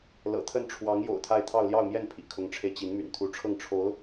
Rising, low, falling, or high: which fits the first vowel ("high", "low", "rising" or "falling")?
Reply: low